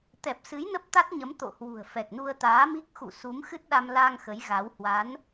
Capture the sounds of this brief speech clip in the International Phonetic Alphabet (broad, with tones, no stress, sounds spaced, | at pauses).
t̪ ɛ˨˩ p̚ s ɨ˨˦ j n ə˦˥ p̚ t̪ a˦˥ t̚ ɲ ə˨˦ m t̪ o̰˧˨ h w ṳ˨˩ ə̯ f ɛ˨˩ k̚ n u˧ ə̯ t̪ aː˨˦ m i˦˥ k̚ x ṵ˧˨ s u˨˦ m x ɨ˦˥ t̚ ɗ a˧ m l a˧ ŋ x ə˨˦ j ɣ a˨˦ w h w a˨˦ n